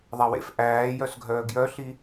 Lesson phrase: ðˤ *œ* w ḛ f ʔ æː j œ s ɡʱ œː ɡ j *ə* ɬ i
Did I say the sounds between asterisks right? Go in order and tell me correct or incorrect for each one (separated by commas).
incorrect, incorrect